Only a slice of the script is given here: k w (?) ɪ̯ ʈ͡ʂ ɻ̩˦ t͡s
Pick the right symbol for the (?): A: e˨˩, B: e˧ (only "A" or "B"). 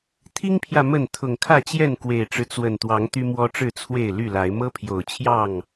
A